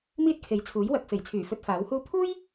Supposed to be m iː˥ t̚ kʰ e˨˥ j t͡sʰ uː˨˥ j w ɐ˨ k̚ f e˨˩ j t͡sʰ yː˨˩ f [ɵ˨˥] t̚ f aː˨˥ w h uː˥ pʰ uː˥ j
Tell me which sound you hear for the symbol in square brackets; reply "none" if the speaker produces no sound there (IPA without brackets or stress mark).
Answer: ɵ˧